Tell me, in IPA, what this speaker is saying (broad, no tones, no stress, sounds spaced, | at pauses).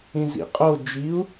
ĩ z ḭ qʼ o d͡ʒ i u̯